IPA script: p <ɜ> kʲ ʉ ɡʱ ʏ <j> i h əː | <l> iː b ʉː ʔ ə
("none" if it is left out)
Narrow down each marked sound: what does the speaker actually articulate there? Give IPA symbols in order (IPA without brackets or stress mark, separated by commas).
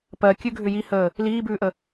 ɜ, j, l